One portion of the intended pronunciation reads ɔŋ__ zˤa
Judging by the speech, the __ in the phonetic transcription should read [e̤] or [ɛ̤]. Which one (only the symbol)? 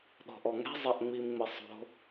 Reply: ɛ̤